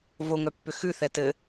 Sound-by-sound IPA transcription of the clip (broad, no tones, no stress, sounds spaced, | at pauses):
v o ŋ œ pː ʏ x ʉ θ ɛ t ɘ